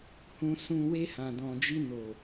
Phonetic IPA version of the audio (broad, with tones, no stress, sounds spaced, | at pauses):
h ũ˨ s ũ˨ w e˧ h ã˨ d ɔ̃˨ d͡ʒ i˧ n o˨